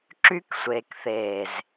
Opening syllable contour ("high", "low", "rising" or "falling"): high